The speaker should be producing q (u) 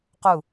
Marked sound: correct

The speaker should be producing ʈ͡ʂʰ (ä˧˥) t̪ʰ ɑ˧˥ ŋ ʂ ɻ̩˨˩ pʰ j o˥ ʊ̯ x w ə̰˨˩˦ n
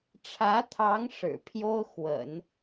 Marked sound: correct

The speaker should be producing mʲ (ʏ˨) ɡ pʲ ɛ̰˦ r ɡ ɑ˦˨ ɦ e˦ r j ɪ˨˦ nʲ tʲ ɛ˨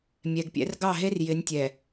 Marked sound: incorrect: ɛ˨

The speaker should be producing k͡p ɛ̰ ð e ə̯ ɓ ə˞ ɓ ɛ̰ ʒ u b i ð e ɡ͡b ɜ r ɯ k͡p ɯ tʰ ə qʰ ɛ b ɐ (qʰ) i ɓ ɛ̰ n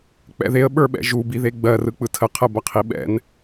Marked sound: correct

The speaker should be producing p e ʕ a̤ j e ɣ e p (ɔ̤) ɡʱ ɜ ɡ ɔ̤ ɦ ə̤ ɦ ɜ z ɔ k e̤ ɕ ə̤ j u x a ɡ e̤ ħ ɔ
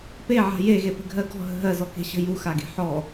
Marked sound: incorrect: ə̤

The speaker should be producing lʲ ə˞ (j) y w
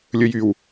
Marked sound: correct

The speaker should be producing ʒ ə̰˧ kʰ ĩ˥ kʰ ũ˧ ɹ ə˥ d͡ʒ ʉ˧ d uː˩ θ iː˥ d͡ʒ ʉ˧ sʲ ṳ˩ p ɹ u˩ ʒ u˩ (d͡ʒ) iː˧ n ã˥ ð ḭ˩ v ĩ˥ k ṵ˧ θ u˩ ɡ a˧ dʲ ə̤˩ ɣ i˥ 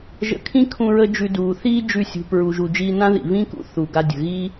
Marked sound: correct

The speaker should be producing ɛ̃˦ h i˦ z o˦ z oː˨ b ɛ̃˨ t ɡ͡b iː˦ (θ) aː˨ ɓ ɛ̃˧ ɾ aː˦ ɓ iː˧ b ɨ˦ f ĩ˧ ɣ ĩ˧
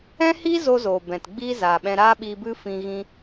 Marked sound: incorrect: z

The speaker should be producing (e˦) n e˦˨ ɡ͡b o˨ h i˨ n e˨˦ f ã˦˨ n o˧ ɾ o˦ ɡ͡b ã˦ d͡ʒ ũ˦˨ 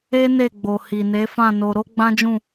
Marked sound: correct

